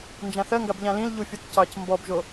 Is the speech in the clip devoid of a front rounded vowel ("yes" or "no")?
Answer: yes